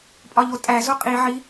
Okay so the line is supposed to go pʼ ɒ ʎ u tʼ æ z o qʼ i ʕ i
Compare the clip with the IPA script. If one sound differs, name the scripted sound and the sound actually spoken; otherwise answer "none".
u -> o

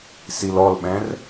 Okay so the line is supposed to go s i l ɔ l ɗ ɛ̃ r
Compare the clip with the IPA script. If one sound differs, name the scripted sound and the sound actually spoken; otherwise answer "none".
ɗ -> ɓ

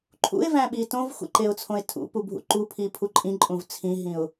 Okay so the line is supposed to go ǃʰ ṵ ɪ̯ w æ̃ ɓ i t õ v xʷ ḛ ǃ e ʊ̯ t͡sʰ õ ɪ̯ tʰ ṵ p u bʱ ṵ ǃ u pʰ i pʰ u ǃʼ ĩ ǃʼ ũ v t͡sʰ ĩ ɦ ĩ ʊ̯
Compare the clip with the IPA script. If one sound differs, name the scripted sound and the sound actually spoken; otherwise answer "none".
w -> v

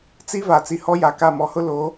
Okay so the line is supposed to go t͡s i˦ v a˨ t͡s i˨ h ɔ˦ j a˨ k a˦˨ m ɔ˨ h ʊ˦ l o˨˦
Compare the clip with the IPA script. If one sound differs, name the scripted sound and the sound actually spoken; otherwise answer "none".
none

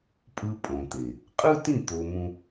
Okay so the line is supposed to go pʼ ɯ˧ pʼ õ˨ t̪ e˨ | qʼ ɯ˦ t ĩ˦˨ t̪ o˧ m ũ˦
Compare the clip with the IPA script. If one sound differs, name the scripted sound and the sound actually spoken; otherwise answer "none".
none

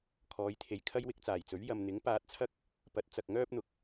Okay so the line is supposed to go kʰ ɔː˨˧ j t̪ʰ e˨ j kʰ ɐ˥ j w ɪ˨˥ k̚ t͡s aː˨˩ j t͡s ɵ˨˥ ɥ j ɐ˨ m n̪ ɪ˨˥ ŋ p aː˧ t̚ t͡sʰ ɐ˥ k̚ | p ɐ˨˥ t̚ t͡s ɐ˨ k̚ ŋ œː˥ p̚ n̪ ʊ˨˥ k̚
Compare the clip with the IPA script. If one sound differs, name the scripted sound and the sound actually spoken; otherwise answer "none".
none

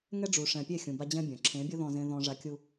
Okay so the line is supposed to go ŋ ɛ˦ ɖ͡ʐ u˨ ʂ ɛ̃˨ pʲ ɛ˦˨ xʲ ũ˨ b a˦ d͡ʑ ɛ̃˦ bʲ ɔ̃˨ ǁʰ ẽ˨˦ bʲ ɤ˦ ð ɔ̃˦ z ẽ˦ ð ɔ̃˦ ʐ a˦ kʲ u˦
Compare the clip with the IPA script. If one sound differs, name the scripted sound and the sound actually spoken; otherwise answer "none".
none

